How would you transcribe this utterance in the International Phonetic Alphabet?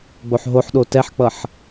ɡ͡b o ħ ɦ o ħ ɗ o t ɛ ħ k͡p ʌ ħ

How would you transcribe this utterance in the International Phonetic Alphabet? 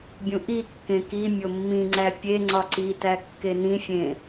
bʲ ũ ʔ i kː ẽ k i mʲ o mː ĩ ŋ͡ǀ æ pʲ e ŋ͡ǀ ɒ ǀ i t æ kː e n ĩ fʲ ẽ

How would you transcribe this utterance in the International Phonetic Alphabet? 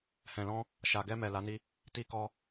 h ɛ̃˨ l ɔ̃˧ | ʃ a˨ ɡ ɛ˧ m ɛ˨ l a˨˦ n i˦ | t i˧ k ɔ˦

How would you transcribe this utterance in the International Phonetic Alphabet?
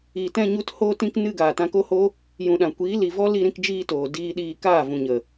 iː˨ t ɛ̃˧ ɲ u˧ t h oː˧ t ĩ˧ k n ɨ˧ ɡ aː˨ t ã˧ k o˦ h o˦ | j ũ˨ ɗ ã˨ kʷ iː˨˦ l i˨ v ɔ˦ l i˧ ɾ ĩ˧ k d͡ʒ iː˧ t oː˨ d iː˧ ɗ iː˧ k aː˦˨ v ũ˨ ɲ ə˨

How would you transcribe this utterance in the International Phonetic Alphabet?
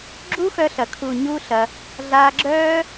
ɡ͡ǁ u˦ x œ˧ ɬ ɐ˨ kʰ u˨ ɲ u˦ ɬ ɐ˧ | ɮ a˧ ɡ͡ǁ œː˦

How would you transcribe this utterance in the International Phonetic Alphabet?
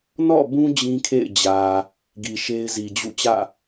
n ɔ̰˦˨ b ũ˦ d͡ʑ ĩ˦ kʰ ḛ˦˨ ɪ̯ d͡ʑ ä˨ | ɡ i˨ ʃ e˦ ɪ̯ z i˨ d͡ʑ ṵ˦˨ t͡ɕ ä̰˦˨

